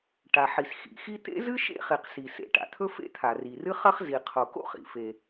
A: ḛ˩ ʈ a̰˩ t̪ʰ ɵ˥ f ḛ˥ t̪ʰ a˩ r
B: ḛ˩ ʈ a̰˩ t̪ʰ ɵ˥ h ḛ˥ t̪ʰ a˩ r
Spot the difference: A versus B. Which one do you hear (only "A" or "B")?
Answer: A